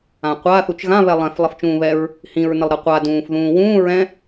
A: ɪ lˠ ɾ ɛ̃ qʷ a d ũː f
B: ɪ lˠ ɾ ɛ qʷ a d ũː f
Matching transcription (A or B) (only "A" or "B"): B